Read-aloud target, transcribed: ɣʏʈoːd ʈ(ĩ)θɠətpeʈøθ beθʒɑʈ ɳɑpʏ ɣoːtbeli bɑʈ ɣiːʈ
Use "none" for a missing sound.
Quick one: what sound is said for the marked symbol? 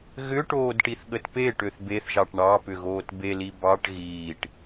i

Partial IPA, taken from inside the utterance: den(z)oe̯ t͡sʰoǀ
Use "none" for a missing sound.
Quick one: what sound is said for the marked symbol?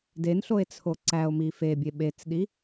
ɬ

